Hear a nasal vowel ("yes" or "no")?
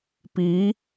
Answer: no